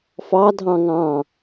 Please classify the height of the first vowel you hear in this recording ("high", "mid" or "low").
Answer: low